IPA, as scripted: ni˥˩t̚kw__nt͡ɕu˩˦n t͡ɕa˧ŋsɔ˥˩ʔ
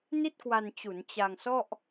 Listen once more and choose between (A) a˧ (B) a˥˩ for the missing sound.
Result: A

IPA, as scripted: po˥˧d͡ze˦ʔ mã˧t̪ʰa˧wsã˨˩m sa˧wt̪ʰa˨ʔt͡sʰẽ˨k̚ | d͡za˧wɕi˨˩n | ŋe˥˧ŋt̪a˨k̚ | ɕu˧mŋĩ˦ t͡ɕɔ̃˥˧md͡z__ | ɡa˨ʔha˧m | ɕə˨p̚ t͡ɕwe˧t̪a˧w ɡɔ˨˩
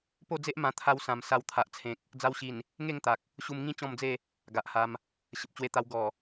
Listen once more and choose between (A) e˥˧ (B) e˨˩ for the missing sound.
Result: A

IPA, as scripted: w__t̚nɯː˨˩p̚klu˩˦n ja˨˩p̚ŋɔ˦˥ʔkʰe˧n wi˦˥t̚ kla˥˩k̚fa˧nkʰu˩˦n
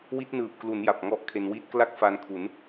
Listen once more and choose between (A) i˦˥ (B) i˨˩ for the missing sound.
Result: A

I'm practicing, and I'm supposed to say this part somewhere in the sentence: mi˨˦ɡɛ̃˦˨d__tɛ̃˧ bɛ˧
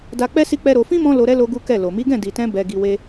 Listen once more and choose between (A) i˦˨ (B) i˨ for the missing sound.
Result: B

